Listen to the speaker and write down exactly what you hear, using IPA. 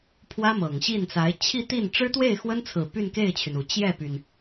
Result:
pʰ w ä˥ m ɤ˨˩ ŋ ɕ i˥˩ n t͡s a˧˥ ɪ̯ t͡ɕʰ i˥˧ t̪ i˥˩ n ʈ͡ʂ ɻ̩˥ t̪ w e˥˩ ɪ̯ x w ə˥ n t͡sʰ ɹ̩˨˩ p y˥˧ n k e˥˩ ɪ̯ t͡ɕʰ y˩ n u˨˩ t͡ɕ j ɛ˥˩ p y˩ n

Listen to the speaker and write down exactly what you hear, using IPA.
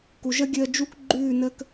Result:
k u˨ ʒ ə˦ ɡʲ əː˧ d͡ʒ u˦ k ɡ͡ǃ ʉː˦˨ n əː˦ k

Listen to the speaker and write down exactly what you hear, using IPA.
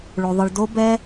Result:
ɭ o˧ ðˤ ɯ˧ ɭ d o˦ b ɛ˦

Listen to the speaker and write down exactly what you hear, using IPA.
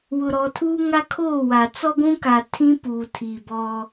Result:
w ʊ˨ ɾ ɔ˨ tʰ uː˦ ŋ a˦ kʰ oː˦˨ w a˨ t͡s ɔ˦ ɡʷ ũ˦ k a˨ tʰ ĩ˦ p uː˨ tʰ i˨ b ɔ˦

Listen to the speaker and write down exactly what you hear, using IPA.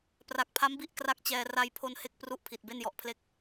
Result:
p r a˨˩ k̚ pʰ a˦˥ m b i˦˥ ʔ k r a˥˩ k̚ t͡ɕ ɛː˧ r a˧ j pʰ o˧ n h e˥˩ k̚ p r u˥˩ ʔ pʰ i˨˩ t̚ b e˥˩ n j ɔ˨˩ ʔ pʰ l e˦˥ k̚

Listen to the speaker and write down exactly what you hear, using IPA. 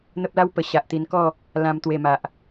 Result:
n̪ ə˦ p̚ l a˦ w p ə˨˩ ɕ a˨ ʔ t̪ i˧ n k ɔ˥˧ | l ã˧ m t̪ w e˨˩ m a˨ ʔ

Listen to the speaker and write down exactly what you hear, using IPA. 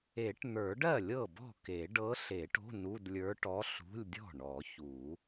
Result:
e˨˩˦ ʈ n̪ ə˞˨˩˦ ɖ ɜ˥˩ lʲ ɤ˥˩ b ɔ̤˥˩ k e˨˩˦ ɖ ɤ˧˥ ɬ e˨˩˦ ʈ o̤˧˥˧ n u˧˥˧ d lʲ ə˞˧˥ ʈ ɔ˧˥ ɬ ṳ˧˥˧ lʲ dʲ ɔ̤˥˩ ɳ ɔ˨˩˦ ç u˨˩˦

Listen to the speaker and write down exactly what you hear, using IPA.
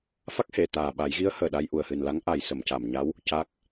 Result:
f a˦˥ k̚ h e˨˩˨ t̪ aː˨˩ ɓ a˨˩˦ j ɣ i˧˥ ə̯ h əː˨˩ ɗ a˧ j ʔ u˨˩ ə̯ h ɨ˨˩ n l a˧˥ ŋ ʔ a˨˩ j s ə˨˩˨ m c a˨˩˨ m ɲ a˧˥ w | c a˦˥ k̚

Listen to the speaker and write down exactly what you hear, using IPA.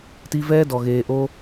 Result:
t i˦ v ɛː˦ d ɔ˨ ɣ eː˧ ʔ o˦

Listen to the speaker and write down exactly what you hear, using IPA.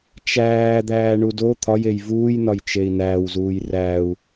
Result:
t͡ʃ æː d̪ æː ɳ u d o t̪ʰ ɒ j e j v uː j n ɒ j t͡ʃ e i̯ n æː w z uː j r æ u̯

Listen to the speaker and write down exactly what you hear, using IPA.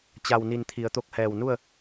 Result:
t͡ɕ a˧˩ w n i˧˩ n t̪ʰ i˩˧ ə̯ t̪ o˧ k̚ h ɛː˧˩ w n u˥˨ ə̯

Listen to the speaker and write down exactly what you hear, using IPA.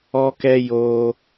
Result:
ɔ˦ k ɛ˦ j o˧

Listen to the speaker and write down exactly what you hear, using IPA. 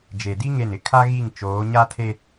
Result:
d͡ʒ e˨ d i˦ ŋ e˦˨ n ɪ˦ kʰ a˦ ɣ i˦˨ ŋ t͡ʃ oː˨˦ ɲ a˦ tʰ e˦

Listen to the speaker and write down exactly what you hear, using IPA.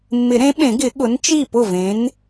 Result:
mː ɪ˨˩˦ ɾ ẽ˨˥ ɓ ẽ˨˩˦ ɡ ɪ˨˩˦ ɠ ʊ˨˥ n t͡ʃ i˥˩ p ʊ˥˩ v ẽ˨˥ n

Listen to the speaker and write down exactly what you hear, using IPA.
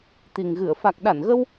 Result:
t̪ i˨˩ ŋ ɣ ɨ˧˩ ə̯ f a˨˩ k̚ ɗ a˧˩ n ɣ ə˧ w

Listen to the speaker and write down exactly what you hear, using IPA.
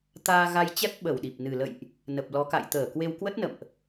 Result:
t̪ aː˧ ɣ a˧ j t͡ɕ ɛ˦˥ p̚ ɓ ə˧˩ w ɗ i˨˩ p̚ n ɨ˨˩ l ə̰˧˨ j ʔ | n ə˨˩ p̚ l ɔ˨˦ k a̰˧˨ j t̪ əː˧˩ k w e˧ w k w ə˦˥ t̚ n ə̰˧˨ m ʔ

